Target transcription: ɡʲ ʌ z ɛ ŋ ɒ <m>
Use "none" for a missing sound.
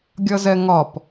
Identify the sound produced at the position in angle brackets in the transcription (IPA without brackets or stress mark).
p